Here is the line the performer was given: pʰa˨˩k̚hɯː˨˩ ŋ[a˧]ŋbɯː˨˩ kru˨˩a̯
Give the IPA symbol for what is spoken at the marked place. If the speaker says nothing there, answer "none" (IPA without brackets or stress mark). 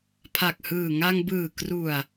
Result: a˧